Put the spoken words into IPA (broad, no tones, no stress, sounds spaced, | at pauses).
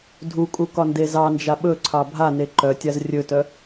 dʱ u kʼ u k ɒ n d e z ɑ n d͡ʒ a ɓ ɵ ǀʰ ɑ bʱ a n e ǃ œ tʲ a z rʲ ɵ t œ